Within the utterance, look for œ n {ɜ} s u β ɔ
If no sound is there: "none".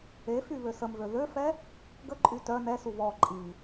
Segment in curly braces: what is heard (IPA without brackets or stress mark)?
ɛ